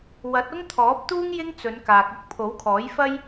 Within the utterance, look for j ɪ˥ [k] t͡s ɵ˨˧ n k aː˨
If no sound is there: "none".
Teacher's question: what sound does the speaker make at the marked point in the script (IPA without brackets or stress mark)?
ŋ